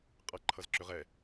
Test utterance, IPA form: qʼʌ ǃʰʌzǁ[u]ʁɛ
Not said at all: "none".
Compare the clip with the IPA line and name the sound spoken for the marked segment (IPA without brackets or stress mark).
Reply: ʏ